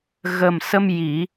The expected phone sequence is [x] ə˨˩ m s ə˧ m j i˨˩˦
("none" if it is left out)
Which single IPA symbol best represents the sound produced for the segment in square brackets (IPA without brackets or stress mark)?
ɣ